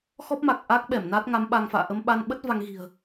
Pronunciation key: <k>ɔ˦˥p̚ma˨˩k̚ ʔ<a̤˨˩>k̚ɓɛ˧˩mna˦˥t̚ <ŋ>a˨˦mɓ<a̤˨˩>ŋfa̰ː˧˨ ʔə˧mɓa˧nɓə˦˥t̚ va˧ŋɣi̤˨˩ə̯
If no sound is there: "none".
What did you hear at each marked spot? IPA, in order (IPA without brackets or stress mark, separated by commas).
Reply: x, a˦˥, ŋ, a˧